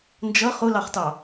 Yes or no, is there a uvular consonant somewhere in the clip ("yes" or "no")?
yes